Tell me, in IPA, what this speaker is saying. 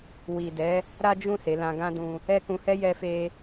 wi˨dɛ˨˦ | ɾa˦d͡ʒũ˦˨ se˨˦lã˧ɡã˦dũ˧ | ɛ˦kũ˧hɛ˦ jɛ˧fe˧

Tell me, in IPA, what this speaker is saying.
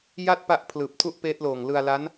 ja˥˩t̚pa˦˥ʔ pʰlɯː˨˩p̚tʰu˥˩ʔpeː˦˥t̚loː˨˩ŋ lɯ˧a̯la˦˥n

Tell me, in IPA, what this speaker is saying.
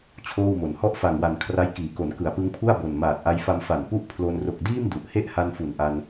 t͡ɕʰoː˥˩wmo˨˩n hɔ˥˩ʔfa˨˩ŋwa˨˩n kʰra˦˥jkiː˩˦ko˩˦n kɯ˩˦a̯pɯ˦˥ŋpʰu˥˩a̯ bo˨˩n maː˨˩t̚ʔa˧jfa˧m fa˨˩npu˥˩ʔpʰlo˧n ro˨˩k̚diː˥˩m du˨˩ʔhe˥˩ʔha˧n fu˨˩nʔa˧n

